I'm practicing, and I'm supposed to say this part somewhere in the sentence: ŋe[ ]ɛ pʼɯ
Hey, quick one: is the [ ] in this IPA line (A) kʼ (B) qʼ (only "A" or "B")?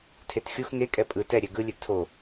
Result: A